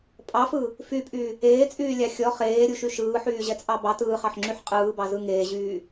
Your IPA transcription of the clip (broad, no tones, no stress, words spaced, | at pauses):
pʼɑfɯ | fypʼy | eːt͡sʼyːlʲɑ xʲɔ χeːɾʲuʃy ʃɯːħyːʑɛt͡sʼɑ bɑt ɯːχɑħŋ͡ǁyħ qʼɯːbɑzɯ ŋeːʑyː